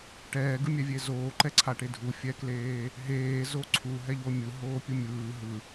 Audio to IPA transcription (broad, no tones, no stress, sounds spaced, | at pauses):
ʈ ɛː ɡ ɯ mʲ ɛ vʲ e z oː ǃ ɛ ǀʰ a ʈ e dʱ u fʲ ɛ k l eː | ɦ eː z o ǀʰ u ɦ ɛ ʎ o mʲ ɯ ɦ oː pʲ u mʲ ɯː ɦ ɯ